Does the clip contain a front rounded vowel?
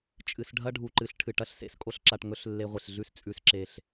no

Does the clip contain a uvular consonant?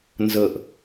no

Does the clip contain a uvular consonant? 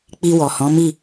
no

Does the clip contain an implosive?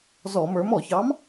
no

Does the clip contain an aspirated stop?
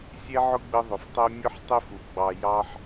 no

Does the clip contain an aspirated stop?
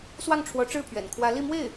yes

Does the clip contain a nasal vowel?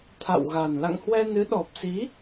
no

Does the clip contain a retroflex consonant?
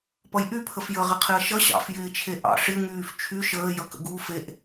yes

